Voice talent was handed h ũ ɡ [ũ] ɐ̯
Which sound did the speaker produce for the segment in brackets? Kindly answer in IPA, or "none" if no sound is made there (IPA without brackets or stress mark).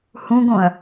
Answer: õ